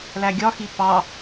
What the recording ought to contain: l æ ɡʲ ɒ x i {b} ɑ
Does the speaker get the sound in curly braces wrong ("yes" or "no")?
yes